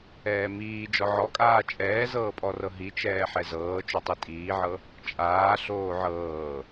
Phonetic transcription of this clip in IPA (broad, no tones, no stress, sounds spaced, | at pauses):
ɛː m iː d͡ʒ ɔ ʕ ɔ kʼ aː t͡ʃʼ ɛː z ɤː pʼ ɔ r ɤ ɦ i t͡ʃ ɛː ħ ɛ z ɤː t͡ʃ o tˤ i tʼ iː ʕ ɤ | t͡ʃʼ aː ɬ oː ʕ ɤː